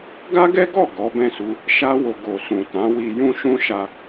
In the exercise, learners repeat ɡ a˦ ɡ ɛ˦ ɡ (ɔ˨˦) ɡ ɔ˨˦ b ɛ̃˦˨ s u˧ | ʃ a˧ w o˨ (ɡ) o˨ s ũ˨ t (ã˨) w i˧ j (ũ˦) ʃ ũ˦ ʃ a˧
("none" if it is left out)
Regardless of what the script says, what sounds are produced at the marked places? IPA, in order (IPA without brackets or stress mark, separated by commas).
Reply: ɔ˦˨, ɡ, ã˨˦, ũ˦